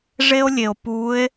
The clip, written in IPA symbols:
ʐe˥o̯lʲe˨˩o̯ pu˧˥e̯

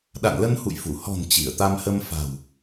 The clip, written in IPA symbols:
ɗa̰˧˨nlə˧nhṵ˧˨j fu˧˩ hɔ̤˨˩n t͡ɕi˧˩ə̯t̪a˧m hə˧mfa̤˨˩w

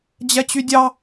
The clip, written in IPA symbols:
d͡ʑɛt͡ɕydʲɑ

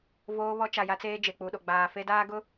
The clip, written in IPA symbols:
voː˦ βɔ˦t͡ʃa˨ja˦t͡seː˦ d͡ʒe˨k͡pu˨ɗo˨ ɡ͡baː˨fe˦daː˦ ɡʊ˦

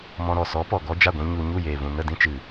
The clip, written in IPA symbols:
mɔ̃˧ɾɔ˨ sɔ˨˦ pɔ˨ɡɔ˦ d͡ʒa˦˨ɡʷĩ˧ ɲu˧ ɲu˦˨jeː˨vũ˨ nə˦˨dĩ˦t͡ʃɨ˨

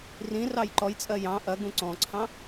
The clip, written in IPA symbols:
rĩrɑj ǃɔjt͡sʼɜ jɑ̃ ʔɐɡũ ǀɔ̃ǀʰɑ̃

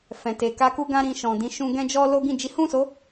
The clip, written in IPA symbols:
fɛ̃˨te˨ ka˧ku˦ɡã˦ ɾĩ˧ʃɔ̃˨dĩ˧ʃũ˦ ɡɛ̃˦d͡ʒɔ˦ lo˦ɡĩ˦˨ d͡ʒi˨˦hũ˦˨so˨˦

